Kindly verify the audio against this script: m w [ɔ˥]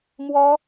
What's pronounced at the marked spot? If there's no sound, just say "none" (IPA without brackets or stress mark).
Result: ɔ˥